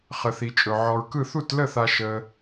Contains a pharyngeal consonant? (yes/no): yes